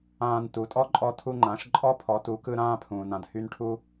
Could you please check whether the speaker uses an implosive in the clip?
no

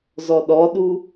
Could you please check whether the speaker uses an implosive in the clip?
yes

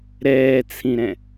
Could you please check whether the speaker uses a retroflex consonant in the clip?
no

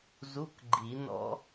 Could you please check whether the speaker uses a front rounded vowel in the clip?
no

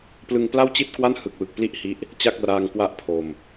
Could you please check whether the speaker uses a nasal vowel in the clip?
no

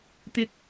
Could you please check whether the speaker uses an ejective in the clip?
no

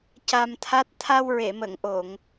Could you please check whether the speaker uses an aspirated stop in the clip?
yes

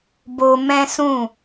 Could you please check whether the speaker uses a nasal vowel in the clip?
yes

